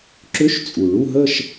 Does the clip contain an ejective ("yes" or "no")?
yes